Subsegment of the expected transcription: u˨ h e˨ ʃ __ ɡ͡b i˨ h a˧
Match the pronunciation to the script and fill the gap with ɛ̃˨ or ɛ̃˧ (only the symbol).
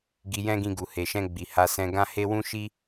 ɛ̃˧